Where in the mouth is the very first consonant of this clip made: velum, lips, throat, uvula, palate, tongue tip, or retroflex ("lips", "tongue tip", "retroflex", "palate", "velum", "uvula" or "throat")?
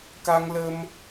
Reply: velum